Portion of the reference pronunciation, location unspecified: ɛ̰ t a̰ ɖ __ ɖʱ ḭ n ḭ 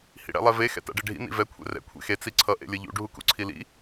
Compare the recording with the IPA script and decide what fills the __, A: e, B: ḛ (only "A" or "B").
A